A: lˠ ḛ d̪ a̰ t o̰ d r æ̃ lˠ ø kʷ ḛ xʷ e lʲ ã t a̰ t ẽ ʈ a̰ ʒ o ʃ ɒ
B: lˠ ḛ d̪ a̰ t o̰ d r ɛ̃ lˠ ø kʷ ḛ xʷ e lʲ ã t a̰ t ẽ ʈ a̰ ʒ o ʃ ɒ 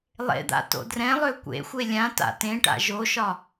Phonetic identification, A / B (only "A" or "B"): B